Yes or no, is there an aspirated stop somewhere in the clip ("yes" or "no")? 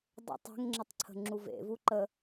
yes